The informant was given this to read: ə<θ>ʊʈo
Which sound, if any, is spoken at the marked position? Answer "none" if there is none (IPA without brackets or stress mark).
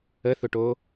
θ